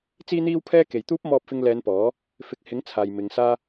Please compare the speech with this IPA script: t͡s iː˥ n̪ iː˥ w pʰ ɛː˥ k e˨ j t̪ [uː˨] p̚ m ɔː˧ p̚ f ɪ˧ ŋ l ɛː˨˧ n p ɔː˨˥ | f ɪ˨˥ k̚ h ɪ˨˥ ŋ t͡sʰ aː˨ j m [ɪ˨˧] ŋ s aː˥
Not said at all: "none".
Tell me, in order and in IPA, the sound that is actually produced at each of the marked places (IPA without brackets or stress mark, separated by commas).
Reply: uː˥, ɪ˨˧